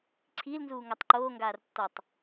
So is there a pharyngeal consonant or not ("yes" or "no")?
no